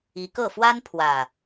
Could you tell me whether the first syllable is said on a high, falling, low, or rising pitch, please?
rising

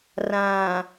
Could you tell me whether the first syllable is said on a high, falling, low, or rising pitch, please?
low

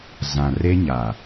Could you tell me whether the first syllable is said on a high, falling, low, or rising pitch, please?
low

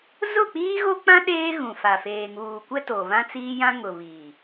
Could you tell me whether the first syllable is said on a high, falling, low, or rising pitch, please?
falling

